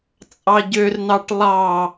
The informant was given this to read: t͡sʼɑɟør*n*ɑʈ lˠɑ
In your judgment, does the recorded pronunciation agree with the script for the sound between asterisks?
yes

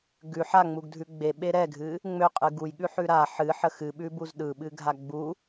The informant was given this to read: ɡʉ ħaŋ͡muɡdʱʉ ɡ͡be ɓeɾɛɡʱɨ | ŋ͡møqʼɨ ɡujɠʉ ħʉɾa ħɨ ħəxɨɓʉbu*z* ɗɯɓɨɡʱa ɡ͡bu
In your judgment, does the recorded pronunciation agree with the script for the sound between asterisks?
yes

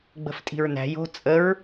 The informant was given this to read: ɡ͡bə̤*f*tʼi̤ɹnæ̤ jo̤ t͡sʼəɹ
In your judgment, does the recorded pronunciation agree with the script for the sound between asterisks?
yes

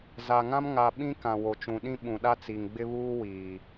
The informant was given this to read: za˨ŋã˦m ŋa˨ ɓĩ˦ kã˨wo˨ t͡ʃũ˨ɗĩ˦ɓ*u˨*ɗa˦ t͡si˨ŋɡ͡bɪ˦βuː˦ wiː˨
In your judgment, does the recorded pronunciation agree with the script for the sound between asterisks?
no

